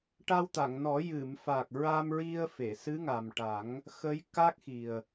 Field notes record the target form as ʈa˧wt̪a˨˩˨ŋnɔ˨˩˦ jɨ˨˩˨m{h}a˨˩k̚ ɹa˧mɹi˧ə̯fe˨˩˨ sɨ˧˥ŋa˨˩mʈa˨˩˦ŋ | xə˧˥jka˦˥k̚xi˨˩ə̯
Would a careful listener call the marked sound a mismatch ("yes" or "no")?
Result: yes